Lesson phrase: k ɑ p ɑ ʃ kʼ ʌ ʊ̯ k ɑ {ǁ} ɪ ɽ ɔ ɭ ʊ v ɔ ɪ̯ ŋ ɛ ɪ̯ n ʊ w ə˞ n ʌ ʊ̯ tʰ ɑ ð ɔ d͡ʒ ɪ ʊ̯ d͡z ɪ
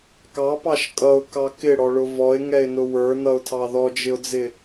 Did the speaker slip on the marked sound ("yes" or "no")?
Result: yes